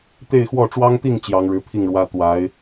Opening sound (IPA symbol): t̪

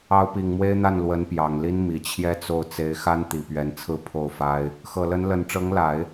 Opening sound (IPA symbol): ɑ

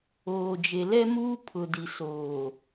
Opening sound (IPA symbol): oː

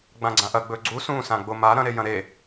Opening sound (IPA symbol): ɡ͡b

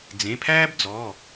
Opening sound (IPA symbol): d͡z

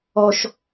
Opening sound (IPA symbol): ɔ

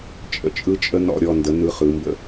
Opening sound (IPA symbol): t͡ʃʼ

